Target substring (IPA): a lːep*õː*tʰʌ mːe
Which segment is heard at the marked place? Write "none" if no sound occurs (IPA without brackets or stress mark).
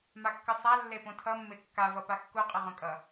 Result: õ